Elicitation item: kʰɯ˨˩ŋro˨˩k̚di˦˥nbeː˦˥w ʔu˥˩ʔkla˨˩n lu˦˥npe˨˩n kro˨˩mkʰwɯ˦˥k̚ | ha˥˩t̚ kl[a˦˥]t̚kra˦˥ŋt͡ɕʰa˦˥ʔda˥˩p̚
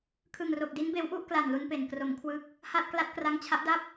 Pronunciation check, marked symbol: correct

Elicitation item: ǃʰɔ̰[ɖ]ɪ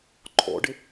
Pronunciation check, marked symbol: correct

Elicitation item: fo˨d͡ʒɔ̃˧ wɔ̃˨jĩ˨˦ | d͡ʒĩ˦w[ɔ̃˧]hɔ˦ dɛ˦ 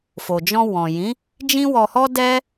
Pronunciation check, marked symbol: incorrect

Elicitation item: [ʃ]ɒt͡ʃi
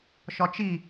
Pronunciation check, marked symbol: correct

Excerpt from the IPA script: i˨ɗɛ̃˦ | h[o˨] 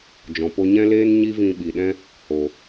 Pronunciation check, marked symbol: correct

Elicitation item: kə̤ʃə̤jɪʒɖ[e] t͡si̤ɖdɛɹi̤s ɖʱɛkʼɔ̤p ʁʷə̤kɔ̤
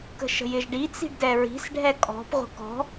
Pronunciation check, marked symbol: incorrect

